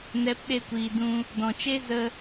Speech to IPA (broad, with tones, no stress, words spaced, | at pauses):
nɛ˨˦pɗe˧kʷiː˨ dũ˧ | dɔ̃˨t͡ʃe˦ zə˧